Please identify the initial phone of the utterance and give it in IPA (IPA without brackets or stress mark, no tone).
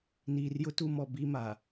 n